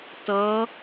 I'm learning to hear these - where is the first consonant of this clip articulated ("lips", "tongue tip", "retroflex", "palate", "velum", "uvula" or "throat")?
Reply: tongue tip